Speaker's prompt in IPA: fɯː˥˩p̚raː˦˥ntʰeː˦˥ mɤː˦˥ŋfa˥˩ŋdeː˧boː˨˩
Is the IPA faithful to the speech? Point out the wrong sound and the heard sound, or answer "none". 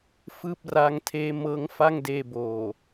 n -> ŋ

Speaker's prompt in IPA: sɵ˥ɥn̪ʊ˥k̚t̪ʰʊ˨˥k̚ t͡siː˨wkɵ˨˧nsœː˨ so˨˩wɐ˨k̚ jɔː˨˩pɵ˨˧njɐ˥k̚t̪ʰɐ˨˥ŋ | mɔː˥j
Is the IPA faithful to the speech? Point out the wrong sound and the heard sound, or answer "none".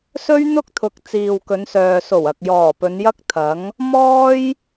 none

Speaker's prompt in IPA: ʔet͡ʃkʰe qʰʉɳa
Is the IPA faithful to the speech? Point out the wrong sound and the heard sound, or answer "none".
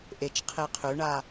kʰ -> qʰ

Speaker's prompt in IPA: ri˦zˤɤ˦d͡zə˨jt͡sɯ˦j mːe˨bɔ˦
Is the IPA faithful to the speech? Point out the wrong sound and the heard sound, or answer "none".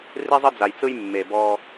ə˨ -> a˨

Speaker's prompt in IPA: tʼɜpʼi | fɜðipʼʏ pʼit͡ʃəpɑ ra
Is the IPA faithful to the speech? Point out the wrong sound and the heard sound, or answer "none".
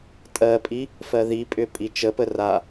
ɑ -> ə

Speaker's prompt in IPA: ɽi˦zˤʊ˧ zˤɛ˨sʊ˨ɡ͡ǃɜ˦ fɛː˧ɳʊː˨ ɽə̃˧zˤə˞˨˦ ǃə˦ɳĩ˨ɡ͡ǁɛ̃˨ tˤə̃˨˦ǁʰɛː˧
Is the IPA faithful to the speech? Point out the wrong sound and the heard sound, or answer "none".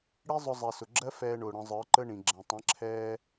ɡ͡ǃ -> ɡ͡ǁ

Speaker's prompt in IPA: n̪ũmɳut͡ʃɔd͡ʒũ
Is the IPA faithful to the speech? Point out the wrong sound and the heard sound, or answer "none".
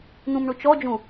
none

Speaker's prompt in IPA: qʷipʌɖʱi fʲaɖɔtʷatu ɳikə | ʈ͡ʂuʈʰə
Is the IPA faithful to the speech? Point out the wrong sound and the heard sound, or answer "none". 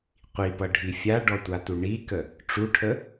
none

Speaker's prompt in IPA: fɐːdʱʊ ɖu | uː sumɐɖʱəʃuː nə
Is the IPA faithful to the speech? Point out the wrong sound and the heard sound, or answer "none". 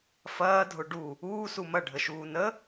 none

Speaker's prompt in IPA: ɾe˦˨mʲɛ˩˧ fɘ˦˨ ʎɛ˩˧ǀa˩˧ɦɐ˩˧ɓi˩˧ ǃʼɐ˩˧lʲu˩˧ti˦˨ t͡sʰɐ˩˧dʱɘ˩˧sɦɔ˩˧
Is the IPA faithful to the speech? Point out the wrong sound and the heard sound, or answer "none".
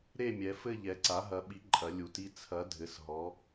none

